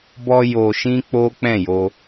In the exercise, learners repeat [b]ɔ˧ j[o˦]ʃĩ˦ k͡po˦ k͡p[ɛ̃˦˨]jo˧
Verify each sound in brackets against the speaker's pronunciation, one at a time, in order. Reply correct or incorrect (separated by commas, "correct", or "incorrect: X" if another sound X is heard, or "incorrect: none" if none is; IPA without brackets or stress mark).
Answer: correct, incorrect: o˧, correct